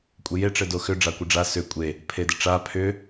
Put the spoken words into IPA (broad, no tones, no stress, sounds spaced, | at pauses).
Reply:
kʷʼ e j e ʈ͡ʂ ɘ d o x ʏ ɖ͡ʐ a kʷ ɘ ɖ͡ʐ a s ʏ kʷʼ e | pʰ e d ɘ ʈ͡ʂ a pʰ ʏ